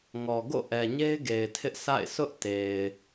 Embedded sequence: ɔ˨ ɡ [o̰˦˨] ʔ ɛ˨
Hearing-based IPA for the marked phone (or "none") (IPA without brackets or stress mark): o̰˦˨